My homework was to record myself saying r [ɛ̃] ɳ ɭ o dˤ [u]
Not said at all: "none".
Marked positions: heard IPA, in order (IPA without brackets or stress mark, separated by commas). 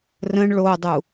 ə̃, u